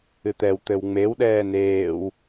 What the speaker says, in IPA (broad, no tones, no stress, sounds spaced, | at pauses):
ɨ t̪ ɛ w t̪ ɘ w ŋ͡m e w ɗ ɛː n eː w